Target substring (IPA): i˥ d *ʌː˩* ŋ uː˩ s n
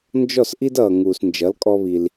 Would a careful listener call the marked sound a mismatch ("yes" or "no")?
no